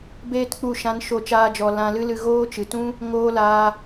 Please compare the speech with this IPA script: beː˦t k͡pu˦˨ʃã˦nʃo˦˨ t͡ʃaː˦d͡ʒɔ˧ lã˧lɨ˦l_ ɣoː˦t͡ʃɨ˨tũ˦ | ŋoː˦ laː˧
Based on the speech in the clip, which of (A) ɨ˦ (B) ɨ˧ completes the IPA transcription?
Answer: B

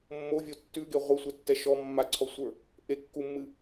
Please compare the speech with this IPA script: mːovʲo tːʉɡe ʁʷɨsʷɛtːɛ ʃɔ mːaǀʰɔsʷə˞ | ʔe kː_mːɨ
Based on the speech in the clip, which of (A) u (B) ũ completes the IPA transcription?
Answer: A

